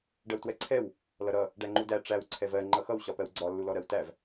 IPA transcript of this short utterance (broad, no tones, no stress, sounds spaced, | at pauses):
ɖ ɜ w t w ɛ ǀʰ ɛ w | l ʌ ɾ ʌ | ɖ æ ŋ͡ǃ u d æ ʈ͡ʂ æ w ǀʰ ɛ v ɜ ŋ͡ǃ ʌ x ʌ w ɕ ɒ p ɜ w ɡ͡ǀ ɒ lː u l ɔ ɾ ɜ w t æ v